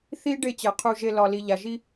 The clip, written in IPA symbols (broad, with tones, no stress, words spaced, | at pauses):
θi˦ ɖe˦˨t͡ɕɛ˨qʰu˧ ʒe˧lɒ˨li˨ ʎa˨ʒi˦